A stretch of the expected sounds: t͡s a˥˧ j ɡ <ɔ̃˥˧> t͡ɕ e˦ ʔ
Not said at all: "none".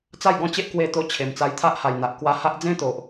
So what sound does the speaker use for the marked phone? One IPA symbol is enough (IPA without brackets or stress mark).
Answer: ɔ̃˥˧